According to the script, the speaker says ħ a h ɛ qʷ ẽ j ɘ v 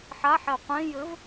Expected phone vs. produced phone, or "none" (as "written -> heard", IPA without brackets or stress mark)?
h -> ħ